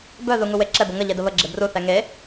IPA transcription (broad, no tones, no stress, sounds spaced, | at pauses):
b œ ð u ŋ u w e ǁ ɛ b ə ŋ ə ʎ e d ə β ə ɡ͡ǁ e b r u θ ɛ ŋ e